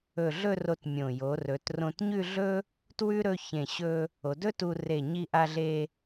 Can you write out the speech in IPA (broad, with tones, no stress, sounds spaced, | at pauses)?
ɵ˧˩ ɮ ɵ˥˧ r o˧ t mʲ õ˧˩ j o˩˧ r ɵ˩˧ t r õ˧ t ɲ ʉ˥˧ ɮ ɵ˥ | t w ʉ˥ ɾ ɵ˥˧ ç ẽ˧˩ ɕ ɵ˧ | o˩˧ d ɵ˥ t u˧ r e˧˩ ɲ i˧ ʔ a˧ ɮ e˧